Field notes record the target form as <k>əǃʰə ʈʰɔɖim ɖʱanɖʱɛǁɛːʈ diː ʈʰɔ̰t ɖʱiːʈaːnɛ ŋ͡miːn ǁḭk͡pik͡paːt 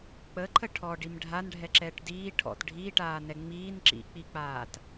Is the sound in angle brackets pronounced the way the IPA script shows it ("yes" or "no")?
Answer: no